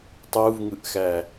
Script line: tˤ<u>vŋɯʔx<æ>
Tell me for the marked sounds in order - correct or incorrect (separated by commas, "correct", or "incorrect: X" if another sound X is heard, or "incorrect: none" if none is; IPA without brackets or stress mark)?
correct, correct